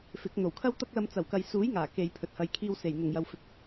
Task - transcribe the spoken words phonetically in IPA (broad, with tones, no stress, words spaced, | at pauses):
fɪ˨˥k̚ n̪o˨˩wkʰɐ˥wt̪ɐ˥k̚lɐ˧m t͡sɐ˨˩wkɐ˨jsuː˨˥j ŋaː˨˩ke˨jpʰɵ˨t̚hɐ˨j kʰiː˧wse˨˩j n̪ʊ˨˩ŋjɐ˨wfɪ˨˥k̚